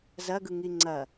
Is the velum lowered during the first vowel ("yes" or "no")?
no